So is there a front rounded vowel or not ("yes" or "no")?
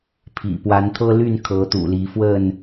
yes